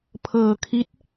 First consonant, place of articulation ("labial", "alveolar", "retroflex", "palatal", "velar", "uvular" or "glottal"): labial